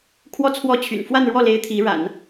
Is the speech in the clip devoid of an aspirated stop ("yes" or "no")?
no